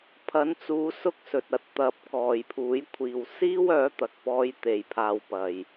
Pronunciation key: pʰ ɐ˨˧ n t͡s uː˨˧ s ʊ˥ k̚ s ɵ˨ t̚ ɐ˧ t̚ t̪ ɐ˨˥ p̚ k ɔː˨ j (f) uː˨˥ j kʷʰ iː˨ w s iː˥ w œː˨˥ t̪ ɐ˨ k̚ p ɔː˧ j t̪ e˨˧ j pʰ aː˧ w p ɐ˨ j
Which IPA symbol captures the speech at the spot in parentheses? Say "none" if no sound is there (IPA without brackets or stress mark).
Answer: pʰ